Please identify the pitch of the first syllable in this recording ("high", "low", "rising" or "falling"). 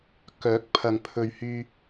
rising